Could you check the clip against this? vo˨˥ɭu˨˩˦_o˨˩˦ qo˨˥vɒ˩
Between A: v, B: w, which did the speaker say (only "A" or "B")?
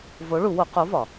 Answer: B